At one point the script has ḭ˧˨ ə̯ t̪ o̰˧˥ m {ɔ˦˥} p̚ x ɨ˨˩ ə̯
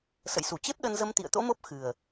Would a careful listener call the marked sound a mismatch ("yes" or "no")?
yes